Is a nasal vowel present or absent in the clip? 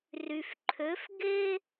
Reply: absent